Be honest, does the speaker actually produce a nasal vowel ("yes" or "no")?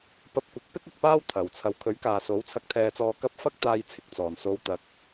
no